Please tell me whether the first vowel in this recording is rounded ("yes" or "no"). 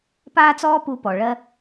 no